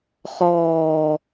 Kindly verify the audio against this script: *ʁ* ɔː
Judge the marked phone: incorrect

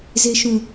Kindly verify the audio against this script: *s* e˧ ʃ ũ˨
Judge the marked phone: incorrect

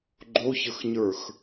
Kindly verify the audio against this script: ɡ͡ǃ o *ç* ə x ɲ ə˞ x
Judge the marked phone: correct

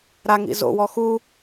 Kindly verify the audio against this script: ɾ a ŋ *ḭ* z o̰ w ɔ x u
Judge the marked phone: correct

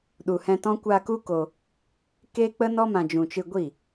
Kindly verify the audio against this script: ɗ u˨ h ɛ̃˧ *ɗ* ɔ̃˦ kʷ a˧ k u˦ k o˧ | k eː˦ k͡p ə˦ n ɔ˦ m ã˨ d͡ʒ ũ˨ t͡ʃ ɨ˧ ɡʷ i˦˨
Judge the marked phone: incorrect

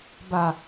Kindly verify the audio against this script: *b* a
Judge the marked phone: correct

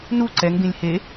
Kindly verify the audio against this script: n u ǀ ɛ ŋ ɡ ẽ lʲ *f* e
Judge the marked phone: incorrect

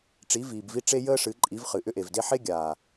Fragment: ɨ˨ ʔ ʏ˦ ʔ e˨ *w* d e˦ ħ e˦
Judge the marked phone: incorrect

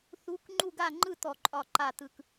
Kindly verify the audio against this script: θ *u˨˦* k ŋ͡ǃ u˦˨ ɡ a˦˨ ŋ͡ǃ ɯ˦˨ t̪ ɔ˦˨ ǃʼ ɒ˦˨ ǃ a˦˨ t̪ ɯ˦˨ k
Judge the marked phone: correct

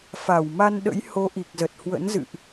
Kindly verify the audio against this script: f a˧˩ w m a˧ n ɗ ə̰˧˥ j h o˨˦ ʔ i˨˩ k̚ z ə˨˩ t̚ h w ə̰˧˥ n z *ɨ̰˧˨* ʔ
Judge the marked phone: correct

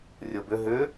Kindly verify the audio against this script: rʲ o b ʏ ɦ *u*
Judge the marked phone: incorrect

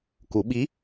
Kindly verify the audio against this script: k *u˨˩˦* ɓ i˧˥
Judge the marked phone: correct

